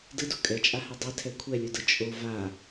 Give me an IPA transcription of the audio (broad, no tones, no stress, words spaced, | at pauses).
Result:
dɯdu kʼɛt͡ʃʼahɛ dˤetʰɛ kʷʰɛlʲudɯ t͡ʃʼo va